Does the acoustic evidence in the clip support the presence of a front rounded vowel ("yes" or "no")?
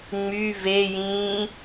yes